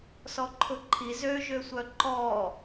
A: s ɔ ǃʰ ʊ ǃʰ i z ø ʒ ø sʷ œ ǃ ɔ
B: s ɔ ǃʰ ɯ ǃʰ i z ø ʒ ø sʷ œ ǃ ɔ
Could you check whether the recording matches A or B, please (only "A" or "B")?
A